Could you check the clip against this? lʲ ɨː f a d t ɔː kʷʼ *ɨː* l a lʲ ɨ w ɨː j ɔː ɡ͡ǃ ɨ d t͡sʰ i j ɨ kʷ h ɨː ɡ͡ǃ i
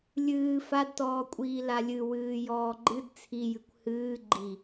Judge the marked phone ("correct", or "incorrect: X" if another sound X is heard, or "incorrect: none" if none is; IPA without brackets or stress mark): incorrect: iː